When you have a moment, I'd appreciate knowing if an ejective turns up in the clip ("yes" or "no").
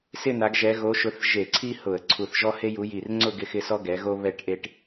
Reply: no